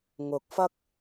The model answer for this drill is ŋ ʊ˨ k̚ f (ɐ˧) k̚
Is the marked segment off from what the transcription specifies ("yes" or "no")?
yes